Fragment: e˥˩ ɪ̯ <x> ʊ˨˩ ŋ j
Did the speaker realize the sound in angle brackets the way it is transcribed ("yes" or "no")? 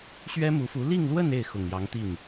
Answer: yes